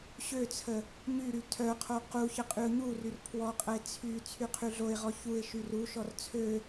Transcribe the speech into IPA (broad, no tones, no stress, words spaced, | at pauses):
ɕøt͡sʰə | ɲyɾy tʰœqʰo quçə qʼyʊ̯ɲuryr pʰwɔqʼəɪ̯ t͡sʰy t͡sʰyqʰyɮoɪ̯ʁɔ çuɪ̯ ʃyruʃɔr t͡sʰø